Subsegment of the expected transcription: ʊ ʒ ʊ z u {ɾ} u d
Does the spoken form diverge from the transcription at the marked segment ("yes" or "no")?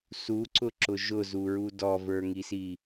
yes